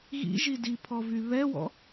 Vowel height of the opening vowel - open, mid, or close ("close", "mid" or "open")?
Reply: close